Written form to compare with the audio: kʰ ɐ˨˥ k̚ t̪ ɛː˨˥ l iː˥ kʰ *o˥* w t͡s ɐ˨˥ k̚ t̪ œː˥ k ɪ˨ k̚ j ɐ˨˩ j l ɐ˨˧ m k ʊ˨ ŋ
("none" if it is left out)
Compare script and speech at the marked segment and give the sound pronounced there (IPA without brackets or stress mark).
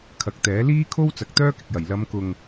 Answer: o˥